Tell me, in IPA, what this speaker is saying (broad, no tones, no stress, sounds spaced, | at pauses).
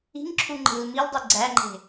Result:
i̤ ŋ ǁʰ u ŋ͡ǃ e̤ l m i l dˤ i ɡ͡ǀ æ ŋ͡ǃ e̤